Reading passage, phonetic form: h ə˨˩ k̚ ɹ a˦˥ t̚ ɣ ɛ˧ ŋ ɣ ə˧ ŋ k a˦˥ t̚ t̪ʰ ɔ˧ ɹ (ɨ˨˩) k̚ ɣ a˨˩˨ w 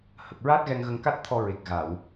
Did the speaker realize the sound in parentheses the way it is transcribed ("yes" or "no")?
no